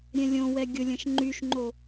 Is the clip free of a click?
no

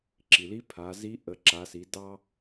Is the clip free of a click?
no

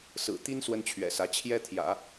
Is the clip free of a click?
yes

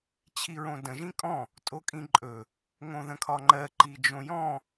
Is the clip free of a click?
no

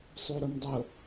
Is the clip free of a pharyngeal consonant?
yes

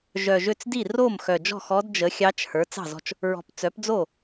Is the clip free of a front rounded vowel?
no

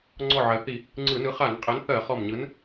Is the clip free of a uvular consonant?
no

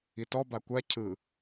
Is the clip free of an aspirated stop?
no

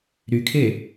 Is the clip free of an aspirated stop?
no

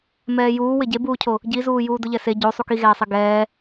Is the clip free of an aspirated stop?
no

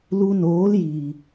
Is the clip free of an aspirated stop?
yes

